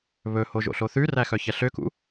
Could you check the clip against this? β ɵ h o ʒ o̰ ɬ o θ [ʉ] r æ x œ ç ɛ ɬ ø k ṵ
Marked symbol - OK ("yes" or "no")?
yes